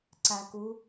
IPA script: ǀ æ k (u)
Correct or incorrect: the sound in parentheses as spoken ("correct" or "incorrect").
correct